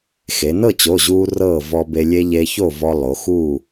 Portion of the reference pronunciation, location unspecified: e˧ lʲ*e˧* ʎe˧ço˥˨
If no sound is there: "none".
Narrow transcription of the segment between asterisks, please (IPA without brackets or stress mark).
e˧